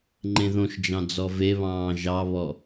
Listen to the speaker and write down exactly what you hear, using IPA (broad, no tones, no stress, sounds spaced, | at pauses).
ŋ͡ǃ ẽ ð õ ʃ d͡ʒ ɑ̃ d͡z ɔ v e β ɑ̃ː ʒ ɑ β ɔ